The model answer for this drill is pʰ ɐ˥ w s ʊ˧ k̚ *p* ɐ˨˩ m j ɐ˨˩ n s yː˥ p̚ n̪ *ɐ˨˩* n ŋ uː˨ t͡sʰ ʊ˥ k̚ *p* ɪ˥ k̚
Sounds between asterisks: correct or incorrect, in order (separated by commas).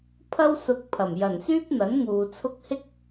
incorrect, incorrect, incorrect